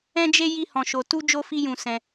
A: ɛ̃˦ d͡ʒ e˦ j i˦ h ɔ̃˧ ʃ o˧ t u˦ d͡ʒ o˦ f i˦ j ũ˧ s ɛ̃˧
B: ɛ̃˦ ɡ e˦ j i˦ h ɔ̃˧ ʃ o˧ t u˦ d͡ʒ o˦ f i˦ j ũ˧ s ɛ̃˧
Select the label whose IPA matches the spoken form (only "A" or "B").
A